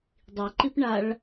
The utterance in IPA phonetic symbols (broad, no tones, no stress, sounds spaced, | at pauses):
dˤ i ǃ i p ɳ a ɭ